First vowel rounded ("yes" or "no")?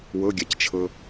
no